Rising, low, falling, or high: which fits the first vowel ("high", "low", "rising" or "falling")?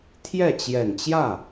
falling